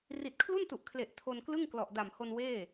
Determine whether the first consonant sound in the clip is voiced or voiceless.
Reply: voiced